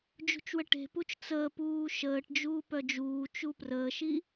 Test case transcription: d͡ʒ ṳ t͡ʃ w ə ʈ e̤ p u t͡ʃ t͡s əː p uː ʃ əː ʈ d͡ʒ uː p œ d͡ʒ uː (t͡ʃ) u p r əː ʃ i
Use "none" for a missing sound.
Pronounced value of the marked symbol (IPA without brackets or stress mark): t͡ʃ